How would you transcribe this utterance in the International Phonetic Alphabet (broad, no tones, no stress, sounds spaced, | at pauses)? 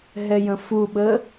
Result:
ɦ ɛ j ə̃ f u ɓ ə